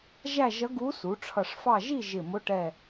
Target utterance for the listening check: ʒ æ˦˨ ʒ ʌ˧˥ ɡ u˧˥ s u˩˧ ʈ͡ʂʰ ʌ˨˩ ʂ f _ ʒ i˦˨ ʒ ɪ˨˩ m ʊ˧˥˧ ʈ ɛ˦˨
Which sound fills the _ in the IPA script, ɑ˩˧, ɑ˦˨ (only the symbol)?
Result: ɑ˦˨